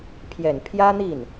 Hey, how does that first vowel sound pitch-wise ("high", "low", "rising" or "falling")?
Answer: low